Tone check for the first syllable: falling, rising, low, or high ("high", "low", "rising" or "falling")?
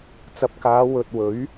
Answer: rising